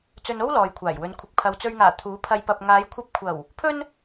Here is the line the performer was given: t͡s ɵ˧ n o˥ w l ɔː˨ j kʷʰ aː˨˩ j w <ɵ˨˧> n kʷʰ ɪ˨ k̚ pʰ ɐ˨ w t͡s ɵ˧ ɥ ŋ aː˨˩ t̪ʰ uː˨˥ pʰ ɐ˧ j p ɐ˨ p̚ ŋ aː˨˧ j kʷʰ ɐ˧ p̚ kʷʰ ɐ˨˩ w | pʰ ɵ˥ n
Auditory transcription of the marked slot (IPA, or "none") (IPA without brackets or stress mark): ɵ˨˧